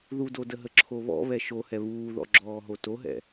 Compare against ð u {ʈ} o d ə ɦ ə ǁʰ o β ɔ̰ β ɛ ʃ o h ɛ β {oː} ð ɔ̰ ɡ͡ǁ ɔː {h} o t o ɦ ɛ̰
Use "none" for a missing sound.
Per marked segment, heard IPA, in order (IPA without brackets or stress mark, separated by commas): d, uː, ɦ